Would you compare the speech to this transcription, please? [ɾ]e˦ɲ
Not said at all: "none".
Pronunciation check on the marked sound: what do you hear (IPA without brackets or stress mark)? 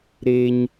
ɾ